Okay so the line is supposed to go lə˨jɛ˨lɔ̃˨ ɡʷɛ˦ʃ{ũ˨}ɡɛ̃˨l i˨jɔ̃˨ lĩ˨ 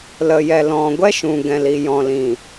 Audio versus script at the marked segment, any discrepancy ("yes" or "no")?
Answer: no